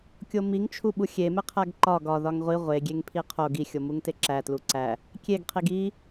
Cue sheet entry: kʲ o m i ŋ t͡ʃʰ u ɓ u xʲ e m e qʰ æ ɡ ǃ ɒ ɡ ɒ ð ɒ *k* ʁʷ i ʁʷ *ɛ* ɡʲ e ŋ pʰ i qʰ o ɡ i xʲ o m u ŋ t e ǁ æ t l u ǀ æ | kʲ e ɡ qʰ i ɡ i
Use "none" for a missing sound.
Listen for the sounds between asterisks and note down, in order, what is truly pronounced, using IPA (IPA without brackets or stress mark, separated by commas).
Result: ŋ, e